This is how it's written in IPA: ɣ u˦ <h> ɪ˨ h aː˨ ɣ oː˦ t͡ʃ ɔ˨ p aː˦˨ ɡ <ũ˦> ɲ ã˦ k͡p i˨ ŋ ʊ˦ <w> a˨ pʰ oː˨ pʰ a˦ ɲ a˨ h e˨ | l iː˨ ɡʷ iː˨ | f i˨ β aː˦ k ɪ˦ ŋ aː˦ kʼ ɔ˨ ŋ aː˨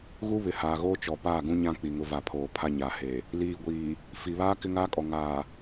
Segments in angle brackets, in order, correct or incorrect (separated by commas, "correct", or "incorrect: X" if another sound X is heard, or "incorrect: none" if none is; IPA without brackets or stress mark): incorrect: β, correct, incorrect: v